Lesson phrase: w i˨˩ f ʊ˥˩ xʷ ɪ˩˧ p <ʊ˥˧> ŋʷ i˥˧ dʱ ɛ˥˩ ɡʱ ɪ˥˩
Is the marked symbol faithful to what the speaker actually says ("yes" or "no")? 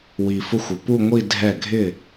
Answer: no